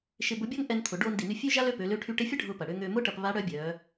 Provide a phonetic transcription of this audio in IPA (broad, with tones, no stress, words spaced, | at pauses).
ʃɪ˧bʊ˧˥bʲɐ˥ŋ ʔɛ˧nt̪ʰʊ˩˧ɖoː˧n di˩ny˧ fʲø˥ ʒa˥lø˧˥pø˩˧lø˧˥ ʈʰy˧ʈe˧˥fʲɐ˥ ɖʱʊː˧pɐ˩ɽø˧ ŋø˧mʊː˥ʈɐ˧p βa˧˥ɽœ˧˥bʲœː˩˧